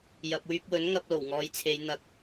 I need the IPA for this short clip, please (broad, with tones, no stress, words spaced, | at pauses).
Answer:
jɐ˨p̚wyː˧p̚wɵ˨˥n ŋɐ˧p̚ lo˨˩wŋɔː˨˧jt͡sʰe˨˧j n̪ɐ˨k̚